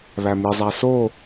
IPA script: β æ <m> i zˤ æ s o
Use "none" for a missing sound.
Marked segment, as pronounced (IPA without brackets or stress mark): m